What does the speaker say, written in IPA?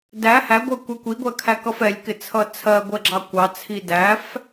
d æ h æ ɡʷ ɜ kʷ ɛ kʷ i ɡʷ ɜ kʰ æ k ʌ f ɛ lʲ k ɪ t͡sʰ ʌ t͡sʰ ɜ ɡʷ ɜ ɡ͡ǁ ɑ kʷ ɑ t͡sʰ i d æ f

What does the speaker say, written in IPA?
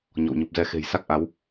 ɲ ɔ̰˧˨ w ɲ u˨˩ p̚ z ɛ˧ x e̤˨˩ j s a˦˥ k̚ ʔ a˨˦ w

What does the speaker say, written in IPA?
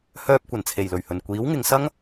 h œː˧ p̚ kʷ ɐ˨˩ n t͡sʰ e˨˩ j l ɵ˨˩ ɥ h ɵ˨˩ n kʷ iː˨˥ w ŋ ɪ˨˧ ŋ s ɐ˥ ŋ

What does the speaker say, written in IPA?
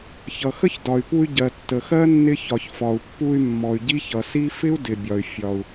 ç ʌ˩ x ə˥ ç d ɒ˩ y̯ p u˧ y̯ ɟ ɜ˩ tː ə˩ x ɜ˥ nː ɪ˧ ç ɒ˩ ç f ɒ˩ u̯ pː u˧ y̯ mː ɔ˩ y̯ ɟ i˥ ç ʌ˩ s i˥ f ɪ˥ u̯ d ɪ˩ bʲ ɒ˩ y̯ fʲ ɒ˩ u̯

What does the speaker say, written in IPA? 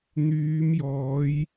n̪ yː˨˧ m j ɔː˨˧ j

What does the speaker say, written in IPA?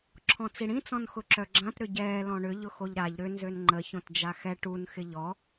ǁʰ ɔ̃ t͡s i ɽ ĩ t͡s ɔ̃ n x ʊ ǁ œ ɡ͡ǁ ã t ɾ ʏ ɟ ɛː l ɔ̃ ɳ ʏ ʎ ʊ x o ʎ ɾ a ʎ ɾ ʏ n z ø n ŋ͡ǃ ə ç õ t d͡ʒ a x ɛ ʈ u n x ɪ ʎ ɔ

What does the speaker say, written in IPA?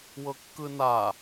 w ɤ kː ɯ n a

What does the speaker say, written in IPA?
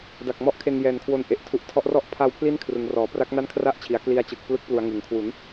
d a˨˩ k̚ m ɔ˦˥ ʔ kʰ e˧ n j ɛː˨˩ n kʰ w o˧ n ʔ e˨˩ ʔ tʰ u˦˥ ʔ tʰ ɔ˦˥ ʔ r ɔ˥˩ ʔ pʰ a˧ w pʰ l i˦˥ n kʰ r ɯ˩˦ ŋ r ɔː˩˦ p r a˦˥ k̚ n a˥˩ n kʰ r a˥˩ ʔ t͡ɕʰ i˩˦ a̯ k l i˧ a̯ t͡ɕ ɯ˨˩ k̚ p l ɯ˦˥ k̚ p l u˩˦ a̯ ŋ ɯ˩˦ ŋ kʰ w u˩˦ n

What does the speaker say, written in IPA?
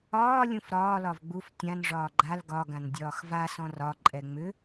ɒː lʲ ũ f ɾ ɒː l ɒ v ɡ͡b u f tʲ ã n ʐ ɒː ɡ͡ǃ a l ɡ ɒ ɡ ã n dʲ ɒː x v a s ɔ̃ r ɒ ǃʼ ɛ ŋ͡m ʏ

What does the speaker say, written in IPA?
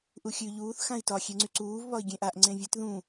ʔ u xʲ ʉ ʎ uː θ x ã i̯ t ɒ xʲ e ŋ͡ǀ y ǀ uː v β ɒ i̯ ɡʲ ẽ ʔ a ʔ ŋ͡ǀ ẽ vʲ ɛ t ð ũ

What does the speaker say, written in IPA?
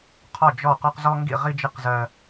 qʰ ɒ˥˨ d͡ʒ ɔ˥˨ q ɒ˦ q z ɔ˦ ŋ ɡ ḭ˥˨ ʁ i˦ d͡ʒ ɪ˥˨ q z ɜ˦

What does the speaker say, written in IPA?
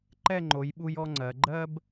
ǃ ɛ˥˧ ŋ͡ǃ o˩˧ j ɓ u˧ j ɔ˥ ŋ͡ǀ ɜ˩˧ ɡ͡ǃ ɜ˥ b

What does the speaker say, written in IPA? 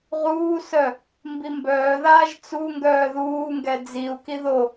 ʁ uː s œ | m b i m b œː ð aː ʒ t͡s u ŋ ɡ œː ð uː ŋ ɡ ɛ d͡z i u̯ k i ð o

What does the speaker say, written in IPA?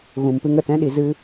ɣ ũ˨ m p ɨ˧ ŋ ə˨ t ɛ̃˦ ɗ i˧ z ɨ˧

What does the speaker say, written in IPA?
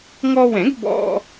ŋ ɔ˧ w ɛ̃˨˩˦ ɡ b ɔ̰˧

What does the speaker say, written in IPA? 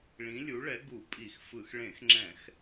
ɭ ĩ˨˥ lʲ u˨˥ ɭ ɛ˨˥ ɡ u˧˩˧ pʼ i˧˩˧ x f ɯ˧˩˧ x ɭ ẽ˧˩˧ x ŋ͡ǁ ɛ̃˧˩˧ x

